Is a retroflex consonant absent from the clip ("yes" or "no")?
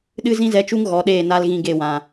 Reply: yes